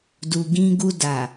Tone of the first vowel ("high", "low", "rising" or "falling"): low